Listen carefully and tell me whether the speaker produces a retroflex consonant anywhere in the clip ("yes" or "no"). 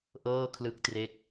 no